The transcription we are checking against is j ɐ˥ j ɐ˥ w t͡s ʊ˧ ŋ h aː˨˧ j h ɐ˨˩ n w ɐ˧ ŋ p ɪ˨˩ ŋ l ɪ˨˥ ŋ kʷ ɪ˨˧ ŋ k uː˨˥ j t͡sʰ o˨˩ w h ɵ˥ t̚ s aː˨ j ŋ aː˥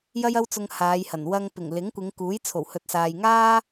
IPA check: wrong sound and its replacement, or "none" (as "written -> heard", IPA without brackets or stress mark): ɵ˥ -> ɵ˨